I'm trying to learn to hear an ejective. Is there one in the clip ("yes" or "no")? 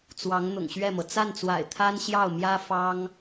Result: no